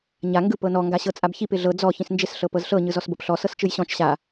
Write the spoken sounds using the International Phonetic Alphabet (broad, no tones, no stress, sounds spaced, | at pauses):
ɲ a ŋ ɡ ɯ p ɤ n ɔ ŋ ɡ a ɕ ɤ t͡sʼ a b ç i p ɪ ɮ ɤ d͡z ɔ ç ĩ s n d͡ʒ ɪ s ɬ ɤ p ɤ z ɬ ɤ ɲ ɯ z ɔ s b ɤ p ɬ ɔ s ɤ s t͡ʃ ɯ j ɕ ɔ̃ t͡ʃ ɕ a